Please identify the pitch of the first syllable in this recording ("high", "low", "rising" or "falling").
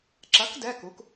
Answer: rising